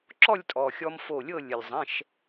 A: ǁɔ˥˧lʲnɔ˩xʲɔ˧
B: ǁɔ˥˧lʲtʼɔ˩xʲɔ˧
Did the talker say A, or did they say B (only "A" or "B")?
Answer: B